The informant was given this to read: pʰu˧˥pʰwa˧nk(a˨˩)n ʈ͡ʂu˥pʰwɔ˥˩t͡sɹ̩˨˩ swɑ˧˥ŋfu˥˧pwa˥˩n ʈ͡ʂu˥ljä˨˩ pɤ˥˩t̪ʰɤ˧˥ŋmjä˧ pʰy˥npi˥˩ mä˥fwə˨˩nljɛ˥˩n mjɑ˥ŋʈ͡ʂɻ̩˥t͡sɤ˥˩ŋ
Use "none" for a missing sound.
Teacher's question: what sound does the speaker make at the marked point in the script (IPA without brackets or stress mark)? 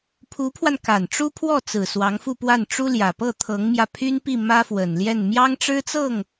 a˨˩